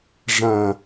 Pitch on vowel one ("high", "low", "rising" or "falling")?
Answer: low